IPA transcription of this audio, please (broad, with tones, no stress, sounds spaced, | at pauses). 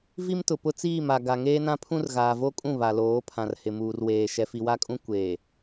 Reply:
v i˦ m t ʊ˨ p ʊ˦ t͡s iː˦˨ m a˨ ɡ a˨ ŋ eː˦ n ã˦ pʰ ũ˦ r ɣ aː˨ v o˦ kʼ ũ˦˨ β a˨ l oː˨˦ pʰ ã˨ r h ɪ˨ m uː˨ r w eː˨ ʃ ɛ˨ f i˨ w a˦ kʼ ũ˦ kʷ eː˨